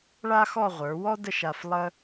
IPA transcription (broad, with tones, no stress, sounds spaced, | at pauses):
ɭ a˥ x ɔ˥˧ ʁʷ ə˞˩˧ w ɔ˥ d ə˥˧ ʃ a˧ f lˠ ə˥